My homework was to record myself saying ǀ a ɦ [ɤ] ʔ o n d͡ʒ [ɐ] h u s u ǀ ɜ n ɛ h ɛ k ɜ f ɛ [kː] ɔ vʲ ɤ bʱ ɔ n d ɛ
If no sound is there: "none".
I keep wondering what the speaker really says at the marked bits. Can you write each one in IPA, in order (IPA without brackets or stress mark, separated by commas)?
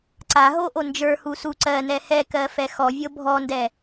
o, ə˞, x